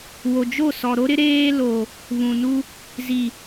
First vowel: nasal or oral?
oral